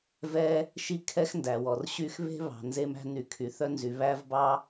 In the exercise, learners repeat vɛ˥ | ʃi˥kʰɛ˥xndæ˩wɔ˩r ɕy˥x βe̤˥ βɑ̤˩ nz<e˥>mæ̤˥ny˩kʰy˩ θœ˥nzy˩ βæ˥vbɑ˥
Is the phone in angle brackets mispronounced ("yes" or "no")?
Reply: no